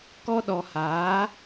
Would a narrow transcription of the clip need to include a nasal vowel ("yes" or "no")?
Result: no